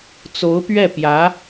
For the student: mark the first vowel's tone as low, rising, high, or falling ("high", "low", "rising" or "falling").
rising